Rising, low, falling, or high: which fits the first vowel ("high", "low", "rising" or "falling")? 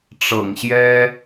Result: low